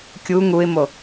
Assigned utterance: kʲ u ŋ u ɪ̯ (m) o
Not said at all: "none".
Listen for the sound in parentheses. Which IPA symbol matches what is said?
m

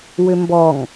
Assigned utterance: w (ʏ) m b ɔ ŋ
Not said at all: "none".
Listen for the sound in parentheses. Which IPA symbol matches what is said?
ʏ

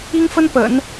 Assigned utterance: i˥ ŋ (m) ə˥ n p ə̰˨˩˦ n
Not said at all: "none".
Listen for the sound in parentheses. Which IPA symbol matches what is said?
f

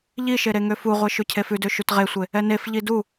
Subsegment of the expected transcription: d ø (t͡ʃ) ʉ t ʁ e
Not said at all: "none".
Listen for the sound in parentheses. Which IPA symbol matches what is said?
ʃ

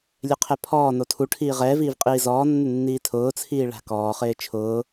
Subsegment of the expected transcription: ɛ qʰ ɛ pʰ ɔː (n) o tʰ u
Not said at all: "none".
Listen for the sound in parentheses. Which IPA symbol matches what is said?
n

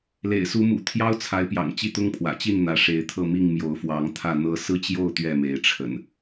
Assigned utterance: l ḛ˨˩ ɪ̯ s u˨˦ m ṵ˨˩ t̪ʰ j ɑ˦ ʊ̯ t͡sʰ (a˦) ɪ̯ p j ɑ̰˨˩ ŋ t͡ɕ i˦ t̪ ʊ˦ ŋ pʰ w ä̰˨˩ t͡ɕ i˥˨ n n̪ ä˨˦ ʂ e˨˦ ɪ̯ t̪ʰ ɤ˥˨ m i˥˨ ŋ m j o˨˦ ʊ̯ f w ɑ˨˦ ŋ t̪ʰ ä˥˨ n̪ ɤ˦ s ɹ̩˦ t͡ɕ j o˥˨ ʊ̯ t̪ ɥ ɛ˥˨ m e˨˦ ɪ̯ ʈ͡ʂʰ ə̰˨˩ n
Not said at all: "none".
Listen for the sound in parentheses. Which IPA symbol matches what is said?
a˨˦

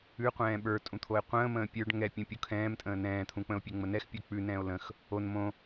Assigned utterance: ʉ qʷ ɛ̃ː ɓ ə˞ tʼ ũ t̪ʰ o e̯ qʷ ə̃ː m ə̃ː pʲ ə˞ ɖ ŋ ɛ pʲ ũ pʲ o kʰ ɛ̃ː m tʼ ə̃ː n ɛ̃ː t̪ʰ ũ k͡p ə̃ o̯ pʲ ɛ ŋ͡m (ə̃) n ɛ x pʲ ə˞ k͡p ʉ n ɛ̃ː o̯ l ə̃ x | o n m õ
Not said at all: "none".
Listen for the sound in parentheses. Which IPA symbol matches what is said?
ə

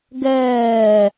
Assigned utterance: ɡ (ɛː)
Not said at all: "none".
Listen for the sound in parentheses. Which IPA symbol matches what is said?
ɛː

